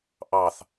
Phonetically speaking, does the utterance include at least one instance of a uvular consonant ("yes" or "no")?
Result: no